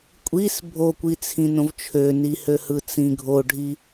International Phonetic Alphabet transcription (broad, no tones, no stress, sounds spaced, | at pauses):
kʷʼ i s bʱ o kʷ i t͡sʰ ĩ n õ v t͡ʃʰ ø n i h ø h ɯ t͡s ĩ ɡʱ o ɖʱ i